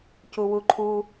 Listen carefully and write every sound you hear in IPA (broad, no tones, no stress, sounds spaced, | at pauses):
c u w u ǃʰ u